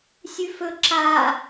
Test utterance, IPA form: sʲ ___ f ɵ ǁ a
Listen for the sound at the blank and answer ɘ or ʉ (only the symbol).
ʉ